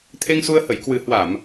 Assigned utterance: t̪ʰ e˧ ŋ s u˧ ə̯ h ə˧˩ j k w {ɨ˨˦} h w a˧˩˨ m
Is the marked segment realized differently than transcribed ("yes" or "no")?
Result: yes